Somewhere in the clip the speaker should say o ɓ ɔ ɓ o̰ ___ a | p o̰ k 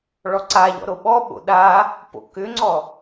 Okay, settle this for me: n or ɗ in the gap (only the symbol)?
ɗ